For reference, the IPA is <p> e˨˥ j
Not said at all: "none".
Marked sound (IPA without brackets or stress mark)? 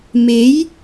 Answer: m